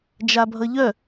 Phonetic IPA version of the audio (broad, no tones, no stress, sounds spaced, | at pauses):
d͡ʒ a bʱ ʌ ʎ œ